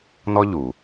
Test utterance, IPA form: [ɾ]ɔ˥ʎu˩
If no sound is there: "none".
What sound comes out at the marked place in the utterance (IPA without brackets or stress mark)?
n